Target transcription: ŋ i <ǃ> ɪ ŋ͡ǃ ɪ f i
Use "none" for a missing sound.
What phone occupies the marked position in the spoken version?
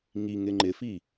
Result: ŋ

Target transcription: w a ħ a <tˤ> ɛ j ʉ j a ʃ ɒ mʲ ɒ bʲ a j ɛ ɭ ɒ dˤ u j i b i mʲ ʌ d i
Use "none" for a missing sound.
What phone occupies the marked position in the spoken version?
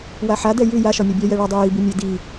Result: d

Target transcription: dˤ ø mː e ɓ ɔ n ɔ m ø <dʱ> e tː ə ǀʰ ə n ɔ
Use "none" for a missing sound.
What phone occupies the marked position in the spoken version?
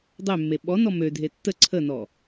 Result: dʱ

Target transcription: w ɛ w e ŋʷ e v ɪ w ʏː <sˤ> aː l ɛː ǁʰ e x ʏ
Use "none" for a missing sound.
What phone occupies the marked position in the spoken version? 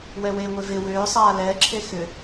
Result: sˤ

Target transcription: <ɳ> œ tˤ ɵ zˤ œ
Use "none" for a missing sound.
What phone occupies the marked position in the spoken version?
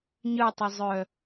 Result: ɲ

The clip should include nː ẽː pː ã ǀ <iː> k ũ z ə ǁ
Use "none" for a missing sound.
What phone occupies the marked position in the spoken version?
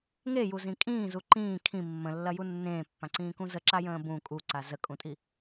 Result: ĩː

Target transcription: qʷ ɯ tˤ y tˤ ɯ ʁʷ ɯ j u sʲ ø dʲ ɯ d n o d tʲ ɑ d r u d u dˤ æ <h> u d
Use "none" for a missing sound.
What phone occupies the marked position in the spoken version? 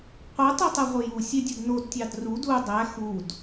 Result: x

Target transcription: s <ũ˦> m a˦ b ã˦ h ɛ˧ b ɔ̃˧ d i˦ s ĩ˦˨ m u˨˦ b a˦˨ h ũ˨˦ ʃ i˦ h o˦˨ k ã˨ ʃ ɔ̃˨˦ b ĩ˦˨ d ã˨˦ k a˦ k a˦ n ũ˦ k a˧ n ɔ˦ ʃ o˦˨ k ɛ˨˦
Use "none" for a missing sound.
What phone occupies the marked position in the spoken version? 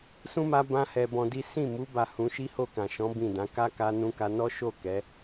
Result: ũ˦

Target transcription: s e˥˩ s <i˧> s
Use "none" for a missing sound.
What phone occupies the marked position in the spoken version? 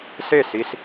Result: i˧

